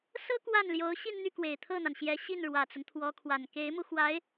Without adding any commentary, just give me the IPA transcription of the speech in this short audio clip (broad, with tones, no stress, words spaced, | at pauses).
sɤ˥ kwa˥˩nljo˧˥ʊ̯ ɕi˥˧nn̪y˥˩kwe˨˩ɪ̯ t̪ʰɤ˥˩n̪a˩nɕjɛ˧˥ ɕi˥˩nɻwä˨˩t͡sʊ˦ŋ t̪ʰwɔ˧˥kʰwa˨˩n ke˧˥ɪ̯mu˧ xwa˧˥ɪ̯